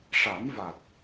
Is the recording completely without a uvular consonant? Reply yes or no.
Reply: yes